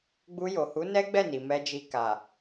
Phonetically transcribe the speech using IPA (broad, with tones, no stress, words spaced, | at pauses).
ɡ͡bu˧jo˨hu˨˦ nɛ˦ɡ͡bɛ˦˨ni˨ mɛ˧d͡ʒi˧ ka˨